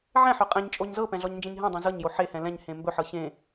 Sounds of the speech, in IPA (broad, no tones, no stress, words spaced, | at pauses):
ʕɛ̃ħœ qʼɛ̃ɲt͡ʃʼoɲ zɤpɛ̃ɮɔɲnd͡ʒẽɲ ɦɛ̃dˤẽ zɤɲjo ħehɛ̃ lɛ̃ɲhẽ mbɵħɤ çẽ